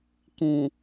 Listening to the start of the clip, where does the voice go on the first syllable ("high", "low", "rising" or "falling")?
low